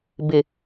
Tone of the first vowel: low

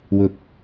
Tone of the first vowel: rising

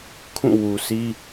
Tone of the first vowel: falling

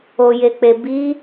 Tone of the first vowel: low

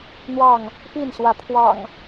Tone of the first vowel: falling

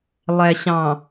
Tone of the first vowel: low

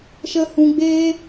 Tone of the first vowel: high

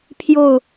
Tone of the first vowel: falling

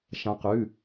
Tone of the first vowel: rising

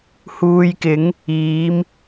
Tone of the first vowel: low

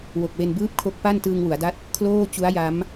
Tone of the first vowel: low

